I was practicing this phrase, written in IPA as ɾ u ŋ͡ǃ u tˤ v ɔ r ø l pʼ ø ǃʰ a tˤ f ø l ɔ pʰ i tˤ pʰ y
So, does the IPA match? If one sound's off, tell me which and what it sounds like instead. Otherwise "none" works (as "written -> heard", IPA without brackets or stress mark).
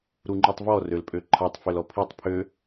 y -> ø